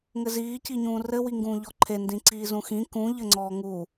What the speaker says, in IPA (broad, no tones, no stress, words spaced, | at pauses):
ŋɘziː ciɲũːrɘ wiŋɡũːʎɔǃʰe ndĩǀiːzũxĩ kũ ʎɘŋ͡ǀɔːŋu